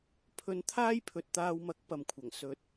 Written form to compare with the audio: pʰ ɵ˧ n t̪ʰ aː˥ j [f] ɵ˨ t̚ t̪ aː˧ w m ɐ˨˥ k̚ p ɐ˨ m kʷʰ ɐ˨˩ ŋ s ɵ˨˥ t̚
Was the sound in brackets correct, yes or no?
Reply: no